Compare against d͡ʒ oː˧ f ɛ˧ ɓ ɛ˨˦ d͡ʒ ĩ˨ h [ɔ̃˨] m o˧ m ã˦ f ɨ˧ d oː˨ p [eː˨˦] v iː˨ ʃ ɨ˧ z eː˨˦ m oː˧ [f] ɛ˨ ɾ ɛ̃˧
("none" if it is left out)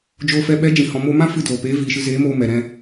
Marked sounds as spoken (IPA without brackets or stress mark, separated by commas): ɔ̃˨, eː˨˦, m